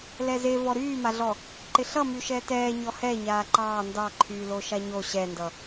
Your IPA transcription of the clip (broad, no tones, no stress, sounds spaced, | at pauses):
l ɛ z e v ɔ ɾ yː m a ɮ ɔ | ǃ ɪ ɬ ʌ m y ʃ ɛ t ɛː ɲ ɔ h ɛ ɲ aː ǃ ɑː n d ɑ ǃʰ yː l o ʃ a ɲ o ɕ ɛ n d ʌ